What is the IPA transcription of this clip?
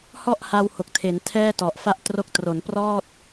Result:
h ɔ˥˩ ʔ h a˧ w h o˨˩ k̚ tʰ e˩˦ n tʰ ɛː˥˩ t ɔ˨˩ ʔ f a˥˩ ʔ t r o˦˥ k̚ t r o˩˦ n p r ɔː˥˩ t̚

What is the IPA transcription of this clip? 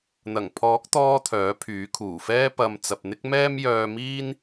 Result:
n̪ ɐ˨˩ ŋ pʰ ɔː˨˥ k̚ t̪ ɔː˧ t̪ʰ œː˨˥ pʰ yː˨˥ kʰ uː˨˩ f ɛː˥ p ɐ˨ m t͡s ɐ˨ p̚ n̪ ɪ˥ k̚ m ɛː˥ m j œː˧ m iː˥ n

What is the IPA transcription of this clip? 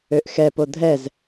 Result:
ø ʔ x ɛ p o dʱ ɛ z

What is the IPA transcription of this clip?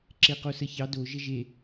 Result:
ǁ e q o s ə ç ɑ d o ʒ ə ʒ e

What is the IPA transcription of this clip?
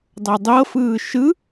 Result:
dˤ ɤ dˤ ɤ f ɯː ʃ ɯ

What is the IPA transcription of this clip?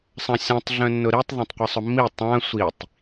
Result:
sˤ ã sʲ ã tˤ ɮ œ̃ nː ʊ ɾ i tˤ ðˤ ã tˤ qʷ ɪ sˤ ʊ mː i tˤ ã sʷ i tˤ

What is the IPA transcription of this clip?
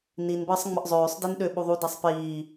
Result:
n i n b əː sˤ ŋ͡m ə ʔ zˤ øː sˤ d i n ɗ ø ɓ u ðˤ u d a sˤ p iː

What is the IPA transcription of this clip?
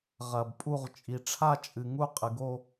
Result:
ʁ ɐ˨ b pʼ u˥˧ ʁ t͡ʃʼ i˨ ʈ͡ʂʰ a˥˧ t͡ʃʼ ɨ˨ ŋ u˥˧ qʼ ɨ˨ ɡ o˥˧

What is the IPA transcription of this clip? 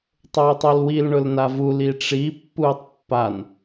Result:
tˤ ʊː tˤ o l w i l ɳ ʊ l n a v u l i ʈ͡ʂ i pː uː tˤ pː a n

